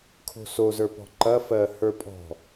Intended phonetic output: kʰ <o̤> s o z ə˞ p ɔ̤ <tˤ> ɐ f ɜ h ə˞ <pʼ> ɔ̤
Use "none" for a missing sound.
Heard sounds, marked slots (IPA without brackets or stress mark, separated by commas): o̤, ǃ, pʼ